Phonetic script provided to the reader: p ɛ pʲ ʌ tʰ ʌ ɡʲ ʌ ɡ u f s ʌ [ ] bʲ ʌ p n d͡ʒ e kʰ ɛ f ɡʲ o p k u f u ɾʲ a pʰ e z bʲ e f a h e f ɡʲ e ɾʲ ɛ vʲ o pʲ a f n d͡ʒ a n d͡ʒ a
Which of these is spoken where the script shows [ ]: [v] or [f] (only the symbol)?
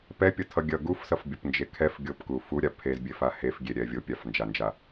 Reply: f